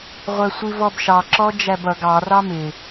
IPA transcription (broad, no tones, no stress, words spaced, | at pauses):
ʁʷæsʷivɔbʃɑ ǁɔd͡ʒæbʌ ɡɑ rɑmɪ